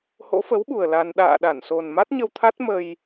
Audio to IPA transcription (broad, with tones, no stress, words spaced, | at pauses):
ho̰˧˥fə˨˦wɓu˨˩ə̯ la˧n ɗa̰ː˧˨ɗa˧˩nso˨˩n ma˦˥t̚ɲə˧wt̪ʰa˦˥t̚ mə˧j